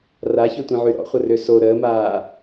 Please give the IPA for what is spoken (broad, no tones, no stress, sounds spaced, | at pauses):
r a ç ø tʷ ĩ ʕ y ɾ ɔ̰ χʷ ə r ø s o ɾ əː m aː